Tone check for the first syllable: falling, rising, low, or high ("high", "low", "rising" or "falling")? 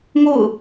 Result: falling